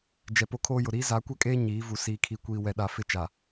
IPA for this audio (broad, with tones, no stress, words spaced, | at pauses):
d͡ʒɛ˨po˦ kʰoː˦jʊ˨ ɾiː˦za˨˦kʷɛ˦kʼeː˦ ɲiː˨˦vu˨ siː˨kʰi˨kʷiː˨ wɛ˨ɗa˨fɪ˦˨t͡ʃa˨